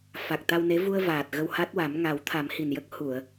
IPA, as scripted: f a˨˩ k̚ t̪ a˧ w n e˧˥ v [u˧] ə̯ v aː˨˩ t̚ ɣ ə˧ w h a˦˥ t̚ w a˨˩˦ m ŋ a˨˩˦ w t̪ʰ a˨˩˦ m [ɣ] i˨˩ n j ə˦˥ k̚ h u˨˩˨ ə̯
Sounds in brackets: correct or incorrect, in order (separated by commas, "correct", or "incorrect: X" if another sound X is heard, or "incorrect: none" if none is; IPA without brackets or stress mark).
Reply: correct, incorrect: h